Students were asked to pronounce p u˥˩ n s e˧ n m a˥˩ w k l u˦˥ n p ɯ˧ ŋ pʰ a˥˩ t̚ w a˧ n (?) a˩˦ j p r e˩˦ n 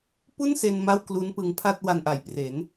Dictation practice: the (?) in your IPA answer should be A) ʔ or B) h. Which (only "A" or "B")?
A